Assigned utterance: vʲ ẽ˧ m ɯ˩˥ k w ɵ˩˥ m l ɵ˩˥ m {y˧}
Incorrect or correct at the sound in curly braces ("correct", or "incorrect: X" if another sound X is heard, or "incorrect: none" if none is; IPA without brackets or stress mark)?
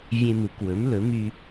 correct